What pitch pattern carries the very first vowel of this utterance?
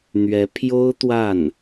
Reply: rising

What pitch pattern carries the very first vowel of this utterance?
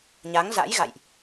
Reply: rising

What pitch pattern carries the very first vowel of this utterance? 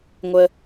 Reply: low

